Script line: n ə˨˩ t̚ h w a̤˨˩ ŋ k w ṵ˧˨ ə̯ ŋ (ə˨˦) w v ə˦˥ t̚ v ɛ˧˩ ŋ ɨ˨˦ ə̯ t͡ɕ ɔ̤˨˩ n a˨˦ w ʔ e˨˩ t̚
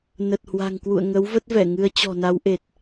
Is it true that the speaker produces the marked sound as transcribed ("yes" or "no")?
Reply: yes